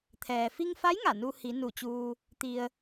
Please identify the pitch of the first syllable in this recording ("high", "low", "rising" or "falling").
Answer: low